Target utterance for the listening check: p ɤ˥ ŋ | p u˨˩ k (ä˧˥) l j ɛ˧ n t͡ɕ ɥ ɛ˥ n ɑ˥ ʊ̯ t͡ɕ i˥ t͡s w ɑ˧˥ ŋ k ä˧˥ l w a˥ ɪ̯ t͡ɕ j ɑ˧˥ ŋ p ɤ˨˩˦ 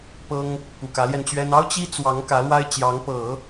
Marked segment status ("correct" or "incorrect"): correct